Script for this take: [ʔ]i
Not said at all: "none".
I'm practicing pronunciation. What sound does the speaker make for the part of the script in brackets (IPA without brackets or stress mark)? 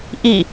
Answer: ʔ